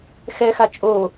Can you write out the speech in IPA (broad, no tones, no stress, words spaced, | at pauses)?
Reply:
xɛxa t͡ʃʼo